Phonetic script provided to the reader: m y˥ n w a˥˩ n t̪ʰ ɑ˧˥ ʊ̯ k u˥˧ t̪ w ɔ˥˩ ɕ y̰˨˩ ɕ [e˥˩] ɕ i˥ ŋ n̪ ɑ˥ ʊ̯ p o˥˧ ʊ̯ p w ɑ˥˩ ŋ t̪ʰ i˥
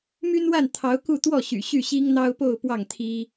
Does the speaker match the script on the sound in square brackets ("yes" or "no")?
no